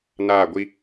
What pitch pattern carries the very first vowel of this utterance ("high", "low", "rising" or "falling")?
falling